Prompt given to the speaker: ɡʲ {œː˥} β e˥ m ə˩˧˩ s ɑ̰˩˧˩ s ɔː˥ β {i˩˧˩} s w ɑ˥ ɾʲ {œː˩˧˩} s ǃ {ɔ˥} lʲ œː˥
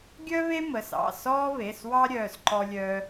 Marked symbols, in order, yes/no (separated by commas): no, no, yes, yes